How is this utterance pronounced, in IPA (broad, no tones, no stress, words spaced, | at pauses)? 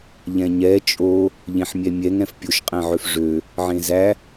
ʎɛ̃ɲɛ t͡ʃʼo | ʎẽħmʲɛmʲɛŋ ɛ̃fpʲoʃ qʼɛ̃ʕøfʐø | ʕẽzæ